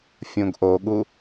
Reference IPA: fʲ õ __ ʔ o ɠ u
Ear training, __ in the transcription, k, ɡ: ɡ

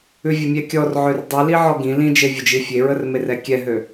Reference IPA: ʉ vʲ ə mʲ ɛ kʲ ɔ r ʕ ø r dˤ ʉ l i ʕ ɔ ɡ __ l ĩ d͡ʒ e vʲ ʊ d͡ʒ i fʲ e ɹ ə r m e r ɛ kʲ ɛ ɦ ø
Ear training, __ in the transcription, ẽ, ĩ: ĩ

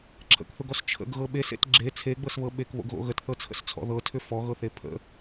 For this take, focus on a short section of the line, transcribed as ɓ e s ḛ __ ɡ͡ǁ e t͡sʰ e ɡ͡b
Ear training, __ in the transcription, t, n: t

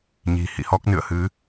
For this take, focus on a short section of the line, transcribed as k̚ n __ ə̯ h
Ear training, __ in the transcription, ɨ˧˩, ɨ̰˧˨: ɨ̰˧˨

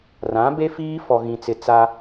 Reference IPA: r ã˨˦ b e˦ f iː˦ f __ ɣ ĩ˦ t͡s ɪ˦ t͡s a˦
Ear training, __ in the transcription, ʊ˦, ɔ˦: ɔ˦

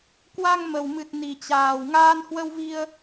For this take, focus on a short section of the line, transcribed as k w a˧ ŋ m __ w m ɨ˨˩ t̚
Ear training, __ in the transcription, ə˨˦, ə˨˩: ə˨˩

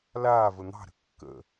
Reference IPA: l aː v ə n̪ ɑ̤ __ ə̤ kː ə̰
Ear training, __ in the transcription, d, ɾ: ɾ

